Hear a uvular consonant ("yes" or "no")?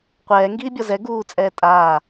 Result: yes